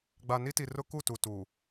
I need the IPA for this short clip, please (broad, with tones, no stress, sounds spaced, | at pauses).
ɡ͡b a˨ n i˦ t i˨ r ʊ˦ k u˦˨ t u˨ t u˨